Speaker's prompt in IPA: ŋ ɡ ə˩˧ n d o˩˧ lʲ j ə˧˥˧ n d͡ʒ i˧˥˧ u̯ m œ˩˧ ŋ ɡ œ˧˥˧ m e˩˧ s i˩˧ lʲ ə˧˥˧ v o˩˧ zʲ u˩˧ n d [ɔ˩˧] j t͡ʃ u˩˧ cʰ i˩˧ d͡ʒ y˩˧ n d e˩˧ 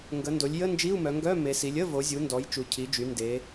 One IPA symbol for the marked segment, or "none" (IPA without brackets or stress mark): ɔ˩˧